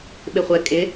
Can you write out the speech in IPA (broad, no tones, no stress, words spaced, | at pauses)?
ɓɪχʷɛ kʼɪ